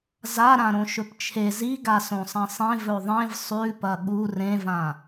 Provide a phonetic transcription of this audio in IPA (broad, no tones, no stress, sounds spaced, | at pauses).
z a ɾ ã ɾ õ ʃ ɵ p t͡ʃʰ e z i ɡ a s õ sˤ ɐ̃ sˤ ẽ v ɵ ðˤ ẽ v sˤ ʉ p ɐ ɠ u r ẽ v ã